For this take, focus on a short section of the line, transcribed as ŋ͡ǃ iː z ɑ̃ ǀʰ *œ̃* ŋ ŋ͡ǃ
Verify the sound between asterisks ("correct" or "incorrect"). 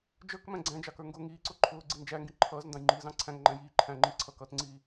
incorrect